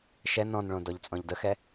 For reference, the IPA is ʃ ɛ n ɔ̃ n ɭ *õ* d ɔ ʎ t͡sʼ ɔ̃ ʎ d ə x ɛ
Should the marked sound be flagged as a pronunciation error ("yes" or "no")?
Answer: no